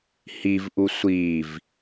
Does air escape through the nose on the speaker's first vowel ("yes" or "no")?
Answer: no